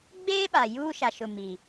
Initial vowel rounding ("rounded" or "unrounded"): unrounded